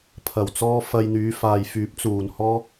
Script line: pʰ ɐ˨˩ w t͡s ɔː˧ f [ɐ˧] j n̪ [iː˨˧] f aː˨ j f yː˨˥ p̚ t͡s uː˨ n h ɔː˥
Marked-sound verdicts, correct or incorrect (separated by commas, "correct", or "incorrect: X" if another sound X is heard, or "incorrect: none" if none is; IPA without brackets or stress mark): correct, incorrect: yː˨˧